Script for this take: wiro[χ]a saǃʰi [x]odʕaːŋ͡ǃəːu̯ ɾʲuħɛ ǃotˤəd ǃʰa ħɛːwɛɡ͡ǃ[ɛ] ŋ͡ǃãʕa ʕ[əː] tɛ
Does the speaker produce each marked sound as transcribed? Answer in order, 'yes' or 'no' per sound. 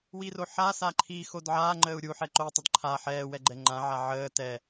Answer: no, yes, yes, yes

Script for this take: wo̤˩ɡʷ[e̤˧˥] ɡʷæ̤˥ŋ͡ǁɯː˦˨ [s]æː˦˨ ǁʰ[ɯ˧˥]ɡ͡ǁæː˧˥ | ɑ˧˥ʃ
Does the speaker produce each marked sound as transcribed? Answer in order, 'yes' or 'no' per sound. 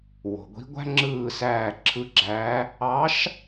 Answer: no, yes, yes

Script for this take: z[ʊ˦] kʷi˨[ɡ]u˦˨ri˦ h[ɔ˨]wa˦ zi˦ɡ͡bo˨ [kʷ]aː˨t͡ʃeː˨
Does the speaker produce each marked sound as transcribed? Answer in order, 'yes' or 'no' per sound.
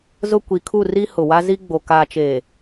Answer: yes, no, no, no

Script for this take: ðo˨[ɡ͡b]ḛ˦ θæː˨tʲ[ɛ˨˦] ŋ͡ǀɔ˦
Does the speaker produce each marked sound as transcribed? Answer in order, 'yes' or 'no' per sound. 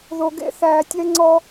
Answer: no, no

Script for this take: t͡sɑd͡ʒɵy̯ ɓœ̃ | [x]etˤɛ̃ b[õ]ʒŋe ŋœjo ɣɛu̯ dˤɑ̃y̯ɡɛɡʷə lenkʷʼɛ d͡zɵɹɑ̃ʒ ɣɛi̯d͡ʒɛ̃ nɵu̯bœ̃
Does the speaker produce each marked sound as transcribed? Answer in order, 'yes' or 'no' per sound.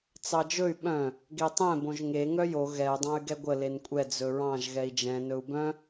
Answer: no, yes

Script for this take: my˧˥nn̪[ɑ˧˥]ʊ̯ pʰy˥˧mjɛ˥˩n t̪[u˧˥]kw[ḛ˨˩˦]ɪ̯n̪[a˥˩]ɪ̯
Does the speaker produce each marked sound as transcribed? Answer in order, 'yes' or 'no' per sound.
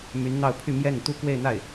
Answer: no, no, no, yes

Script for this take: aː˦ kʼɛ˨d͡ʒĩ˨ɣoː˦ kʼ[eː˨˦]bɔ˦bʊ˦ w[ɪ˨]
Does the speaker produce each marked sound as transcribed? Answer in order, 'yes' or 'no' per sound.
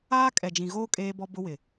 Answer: no, yes

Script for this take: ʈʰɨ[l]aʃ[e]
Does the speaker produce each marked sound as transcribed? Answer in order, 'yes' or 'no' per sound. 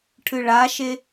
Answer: no, yes

